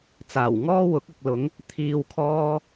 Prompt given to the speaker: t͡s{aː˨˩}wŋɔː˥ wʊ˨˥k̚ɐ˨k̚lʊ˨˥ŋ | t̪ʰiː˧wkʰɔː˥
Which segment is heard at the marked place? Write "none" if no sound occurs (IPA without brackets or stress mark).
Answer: aː˨˩